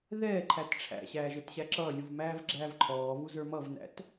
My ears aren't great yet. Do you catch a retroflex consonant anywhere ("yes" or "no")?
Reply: yes